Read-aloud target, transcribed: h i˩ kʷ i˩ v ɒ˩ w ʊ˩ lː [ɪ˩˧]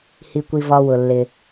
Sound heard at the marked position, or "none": ɪ˩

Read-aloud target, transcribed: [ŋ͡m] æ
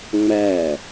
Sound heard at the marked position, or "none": ŋ͡m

